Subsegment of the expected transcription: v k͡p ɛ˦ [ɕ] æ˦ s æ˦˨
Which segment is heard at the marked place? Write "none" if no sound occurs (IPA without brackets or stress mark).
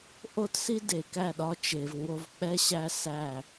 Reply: ɕ